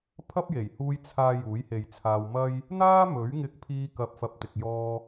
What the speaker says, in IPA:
pʰ ɐ˥ p̚ j e˨˩ j h uː˧ j t͡sʰ aː˨ j uː˨˥ j h e˨ j t͡sʰ aː˧ w m ɐ˥ j | n̪ aː˥ m ɵ˨˥ ɥ ŋ ɪ˧ k̚ pʰ iː˧ k ɐ˨ p̚ f ɐ˨ p̚ t̪ ɪ˨ k̚ j ɔː˧

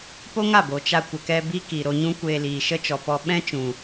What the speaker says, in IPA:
p o˦ ŋ a˦˨ b o˨ t͡ʃ a˧ kʷ ə˨ k ɛ˧ b i˦ k i˨ ɾ o˧ ɲ ũ˦ kʷ eː˧ l iː˨ ʃ ə˦ t͡ʃ ɔ˨ p ɔ˧ ɓ ɛ̃˦ t͡ʃ ũ˨

